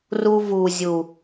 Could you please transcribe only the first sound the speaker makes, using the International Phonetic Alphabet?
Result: r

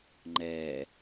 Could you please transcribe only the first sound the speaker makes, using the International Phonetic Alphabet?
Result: ŋ͡ǃ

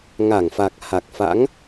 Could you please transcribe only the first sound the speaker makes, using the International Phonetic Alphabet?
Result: ŋ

